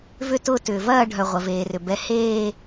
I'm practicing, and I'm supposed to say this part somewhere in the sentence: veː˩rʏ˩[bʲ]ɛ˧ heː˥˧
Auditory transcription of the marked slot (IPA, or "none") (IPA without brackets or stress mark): b